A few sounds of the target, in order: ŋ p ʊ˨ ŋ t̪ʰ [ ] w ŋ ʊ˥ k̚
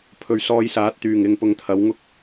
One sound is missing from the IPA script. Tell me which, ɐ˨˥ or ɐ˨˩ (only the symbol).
ɐ˨˥